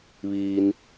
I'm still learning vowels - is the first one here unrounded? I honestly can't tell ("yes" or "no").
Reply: yes